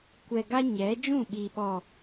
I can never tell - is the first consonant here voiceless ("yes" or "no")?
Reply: yes